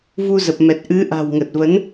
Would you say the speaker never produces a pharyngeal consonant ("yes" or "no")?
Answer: yes